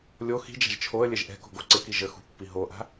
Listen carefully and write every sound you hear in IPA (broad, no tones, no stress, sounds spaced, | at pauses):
lʲ o x i̤ d͡ʒ a̤ ʒ t͡ʃʰ o ə̯ lʲ ɛ ʒ ʔ ɛ̤ k o̤ ɡ o ǀ ɪ k i ʒ ə x ṳ pː i ɦ o ʔ a̤